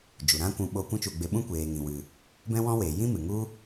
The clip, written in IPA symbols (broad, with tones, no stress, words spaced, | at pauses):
d͡ʒu˨ɾã˦kʷũ˧ ɓo˧ kʷũ˦t͡ʃu˧ɡ͡be˧ ɓũ˦ kʷeː˨ŋĩ˨wɨ˨ | bɛ̃˦wɔ̃˦weː˨ jĩ˦ mɨ˨ŋu˦